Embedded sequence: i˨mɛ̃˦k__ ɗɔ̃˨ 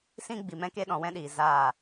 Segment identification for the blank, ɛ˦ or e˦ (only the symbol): e˦